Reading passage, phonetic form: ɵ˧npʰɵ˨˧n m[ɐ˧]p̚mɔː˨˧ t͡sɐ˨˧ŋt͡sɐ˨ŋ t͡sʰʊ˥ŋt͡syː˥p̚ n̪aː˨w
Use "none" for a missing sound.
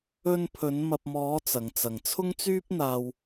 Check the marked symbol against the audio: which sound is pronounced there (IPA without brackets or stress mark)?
ɐ˨